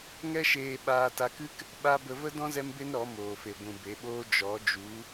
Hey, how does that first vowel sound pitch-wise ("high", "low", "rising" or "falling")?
high